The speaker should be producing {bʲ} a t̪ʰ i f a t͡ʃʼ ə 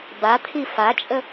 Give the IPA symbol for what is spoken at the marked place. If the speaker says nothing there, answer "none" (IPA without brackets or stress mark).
b